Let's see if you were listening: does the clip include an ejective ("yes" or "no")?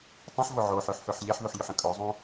yes